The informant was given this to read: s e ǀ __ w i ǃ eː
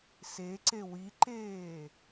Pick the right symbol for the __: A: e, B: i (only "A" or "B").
A